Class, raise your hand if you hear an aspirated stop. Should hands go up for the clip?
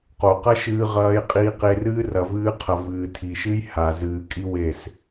yes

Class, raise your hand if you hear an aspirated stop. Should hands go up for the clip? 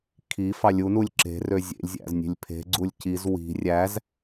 yes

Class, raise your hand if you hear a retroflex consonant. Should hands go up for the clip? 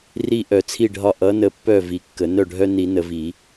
yes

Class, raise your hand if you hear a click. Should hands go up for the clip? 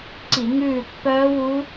yes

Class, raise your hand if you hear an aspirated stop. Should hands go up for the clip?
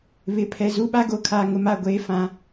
yes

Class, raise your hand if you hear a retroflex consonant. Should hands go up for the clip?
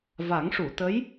yes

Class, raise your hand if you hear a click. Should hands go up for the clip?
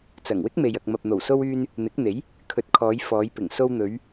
no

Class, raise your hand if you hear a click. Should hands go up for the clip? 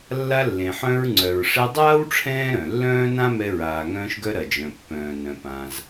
yes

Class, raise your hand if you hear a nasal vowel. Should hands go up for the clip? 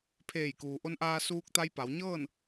no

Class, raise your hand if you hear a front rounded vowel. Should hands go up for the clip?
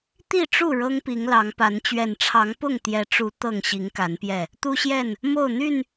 yes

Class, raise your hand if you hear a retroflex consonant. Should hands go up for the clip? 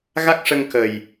yes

